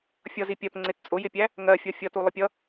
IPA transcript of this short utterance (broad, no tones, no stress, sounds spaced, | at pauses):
fʲ ʌ z i pʲ ɜ p ŋ͡ǀ ɪ t t͡sʼ ʊ j ɪ pʲ æ | ŋ ɜ fʲ ɔ fʲ ʌ t u lˠ ə pʲ ʌ